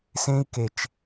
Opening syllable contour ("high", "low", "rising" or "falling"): high